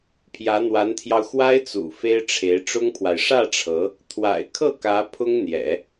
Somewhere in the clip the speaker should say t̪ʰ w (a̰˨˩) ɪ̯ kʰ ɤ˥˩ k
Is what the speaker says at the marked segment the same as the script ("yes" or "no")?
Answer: yes